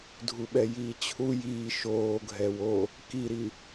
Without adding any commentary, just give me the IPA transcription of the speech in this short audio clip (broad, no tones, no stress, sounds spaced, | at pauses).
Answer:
dʱ u ɓ ɛ j iː t͡ɕʰ u j iː ʃ oː ɡʱ ɛ w o | k i ɾ i